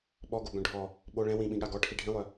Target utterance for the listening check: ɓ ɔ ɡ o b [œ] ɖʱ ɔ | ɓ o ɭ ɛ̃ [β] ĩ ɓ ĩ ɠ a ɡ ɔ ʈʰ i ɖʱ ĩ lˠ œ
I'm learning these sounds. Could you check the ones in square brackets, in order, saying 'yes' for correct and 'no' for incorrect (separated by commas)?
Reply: no, no